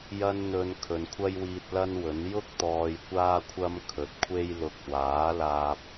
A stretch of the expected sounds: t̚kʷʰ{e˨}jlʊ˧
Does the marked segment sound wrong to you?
yes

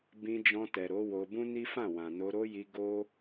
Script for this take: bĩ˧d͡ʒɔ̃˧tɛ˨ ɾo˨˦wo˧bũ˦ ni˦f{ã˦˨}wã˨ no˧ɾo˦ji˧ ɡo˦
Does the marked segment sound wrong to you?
no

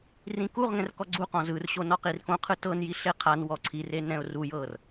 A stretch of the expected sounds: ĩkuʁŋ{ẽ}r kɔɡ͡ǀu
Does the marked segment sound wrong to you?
yes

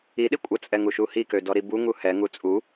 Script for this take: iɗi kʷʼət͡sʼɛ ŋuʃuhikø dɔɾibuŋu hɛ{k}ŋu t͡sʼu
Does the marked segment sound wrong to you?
yes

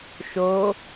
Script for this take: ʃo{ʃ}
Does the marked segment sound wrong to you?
yes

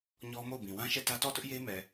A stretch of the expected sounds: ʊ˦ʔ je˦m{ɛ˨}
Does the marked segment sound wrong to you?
no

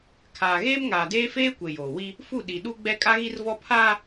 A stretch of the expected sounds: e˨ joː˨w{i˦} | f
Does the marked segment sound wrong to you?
no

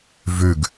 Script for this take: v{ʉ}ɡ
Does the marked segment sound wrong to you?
no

